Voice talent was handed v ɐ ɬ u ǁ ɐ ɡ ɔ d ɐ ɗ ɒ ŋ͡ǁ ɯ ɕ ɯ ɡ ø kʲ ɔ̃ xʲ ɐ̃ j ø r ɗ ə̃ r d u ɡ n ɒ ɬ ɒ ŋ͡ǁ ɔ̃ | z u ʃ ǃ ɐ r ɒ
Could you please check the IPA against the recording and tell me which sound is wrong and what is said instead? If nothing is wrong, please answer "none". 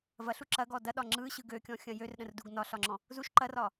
none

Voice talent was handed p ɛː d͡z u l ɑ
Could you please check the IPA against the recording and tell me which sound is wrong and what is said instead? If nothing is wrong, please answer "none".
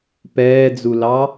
none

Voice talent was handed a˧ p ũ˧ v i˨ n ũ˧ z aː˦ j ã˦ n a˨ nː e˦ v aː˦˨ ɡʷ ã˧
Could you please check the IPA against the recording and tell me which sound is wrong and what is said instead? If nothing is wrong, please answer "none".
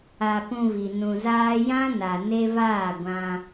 nː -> n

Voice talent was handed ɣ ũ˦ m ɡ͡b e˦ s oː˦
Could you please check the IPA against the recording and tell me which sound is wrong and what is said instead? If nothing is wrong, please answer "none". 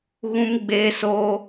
none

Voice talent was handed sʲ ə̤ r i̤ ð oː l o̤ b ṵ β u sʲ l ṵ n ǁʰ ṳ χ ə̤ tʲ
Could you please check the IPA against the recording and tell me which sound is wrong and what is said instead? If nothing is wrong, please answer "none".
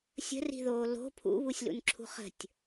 b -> pʰ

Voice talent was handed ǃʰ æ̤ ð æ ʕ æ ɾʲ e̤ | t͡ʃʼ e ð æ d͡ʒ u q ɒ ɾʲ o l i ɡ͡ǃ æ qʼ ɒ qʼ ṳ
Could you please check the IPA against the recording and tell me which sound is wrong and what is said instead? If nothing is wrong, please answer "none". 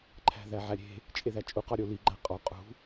d͡ʒ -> t͡ʃʼ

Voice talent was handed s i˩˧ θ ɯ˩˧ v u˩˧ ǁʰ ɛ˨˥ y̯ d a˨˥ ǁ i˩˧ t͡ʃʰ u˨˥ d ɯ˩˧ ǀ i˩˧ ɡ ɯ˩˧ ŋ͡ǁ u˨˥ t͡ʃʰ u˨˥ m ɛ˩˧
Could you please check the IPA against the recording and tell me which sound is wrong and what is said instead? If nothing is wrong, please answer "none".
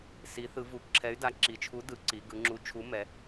none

